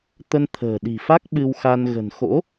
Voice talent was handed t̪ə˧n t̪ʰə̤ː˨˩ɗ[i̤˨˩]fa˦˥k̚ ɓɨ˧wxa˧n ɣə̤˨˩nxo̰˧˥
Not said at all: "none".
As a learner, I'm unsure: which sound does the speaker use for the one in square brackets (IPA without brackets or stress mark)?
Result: i̤˨˩